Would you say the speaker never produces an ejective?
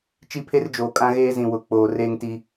no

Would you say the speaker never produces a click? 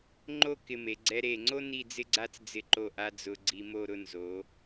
no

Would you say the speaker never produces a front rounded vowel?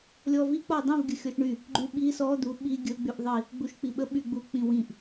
no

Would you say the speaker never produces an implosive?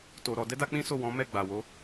yes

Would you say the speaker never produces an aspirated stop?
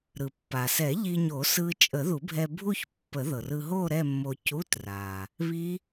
yes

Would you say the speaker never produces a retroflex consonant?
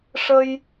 no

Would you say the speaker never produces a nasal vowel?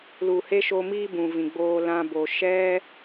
no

